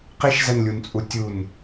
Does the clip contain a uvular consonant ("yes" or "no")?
yes